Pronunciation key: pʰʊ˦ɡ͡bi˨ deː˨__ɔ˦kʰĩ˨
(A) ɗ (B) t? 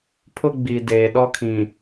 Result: A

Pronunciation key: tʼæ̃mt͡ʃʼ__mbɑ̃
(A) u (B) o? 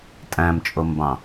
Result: B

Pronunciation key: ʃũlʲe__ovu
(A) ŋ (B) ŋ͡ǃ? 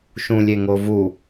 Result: A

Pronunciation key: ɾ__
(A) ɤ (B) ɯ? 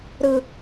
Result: B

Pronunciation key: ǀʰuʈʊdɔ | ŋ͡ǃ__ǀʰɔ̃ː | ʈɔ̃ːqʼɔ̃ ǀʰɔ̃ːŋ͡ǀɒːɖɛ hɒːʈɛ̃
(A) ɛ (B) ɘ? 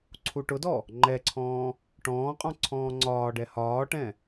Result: A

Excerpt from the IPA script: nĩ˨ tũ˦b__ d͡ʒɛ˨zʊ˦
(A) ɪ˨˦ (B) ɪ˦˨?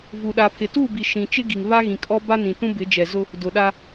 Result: A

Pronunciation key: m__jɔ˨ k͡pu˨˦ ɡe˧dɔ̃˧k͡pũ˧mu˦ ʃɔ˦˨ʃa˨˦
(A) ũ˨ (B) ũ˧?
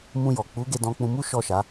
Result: B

